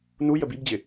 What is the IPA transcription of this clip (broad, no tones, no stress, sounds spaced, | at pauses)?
n u j ə b i b d͡ʑ ɪ